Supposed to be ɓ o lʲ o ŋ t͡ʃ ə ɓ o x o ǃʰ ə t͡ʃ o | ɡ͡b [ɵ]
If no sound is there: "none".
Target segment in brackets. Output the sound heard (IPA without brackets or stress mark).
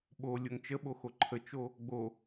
o